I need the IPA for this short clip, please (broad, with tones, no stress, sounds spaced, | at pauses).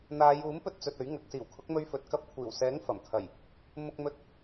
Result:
n̪ aː˨˧ j uː˨˥ m p ɵ˧ t̚ t͡s ɵ˨ t̚ ɵ˨˥ ɥ ŋ ɐ˨˥ k̚ s iː˨˩ w kʰ ʊ˨˥ k̚ m ɵ˧ ɥ f ɵ˨ t̚ k ɐ˧ p̚ kʷʰ iː˨˩ w s ɛː˨˥ ŋ f ɐ˨˩ m kʰ ɐ˨˩ j | m ʊ˧ k̚ m ɵ˧ t̚